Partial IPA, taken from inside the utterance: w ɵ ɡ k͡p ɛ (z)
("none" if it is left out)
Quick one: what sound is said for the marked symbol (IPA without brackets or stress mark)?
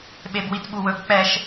ʃ